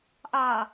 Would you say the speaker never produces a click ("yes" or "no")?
yes